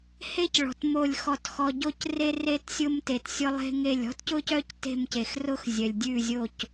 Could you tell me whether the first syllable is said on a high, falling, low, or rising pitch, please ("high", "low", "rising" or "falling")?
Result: high